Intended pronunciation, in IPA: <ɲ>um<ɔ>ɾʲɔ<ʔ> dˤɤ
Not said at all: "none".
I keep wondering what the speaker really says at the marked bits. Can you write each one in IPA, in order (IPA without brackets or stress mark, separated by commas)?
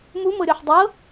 m, ɤ, ħ